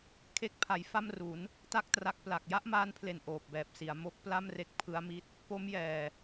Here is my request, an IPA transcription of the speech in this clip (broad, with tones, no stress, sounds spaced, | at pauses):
kʰ e˦˥ k̚ pʰ a˩˦ j f a˥˩ m r u˩˦ n | t a˥˩ k̚ t r a˦˥ k̚ p l a˨˩ k̚ j a˥˩ ʔ m aː˦˥ n pʰ l e˨˩ n ʔ oː˨˩ p̚ b ɛː˨˩ p̚ s i˩˦ a̯ m o˦˥ k̚ p l a˥˩ m r e˦˥ k̚ pʰ ɯ˦˥ a̯ m i˦˥ t̚ | p o˦˥ m j ɛː˨˩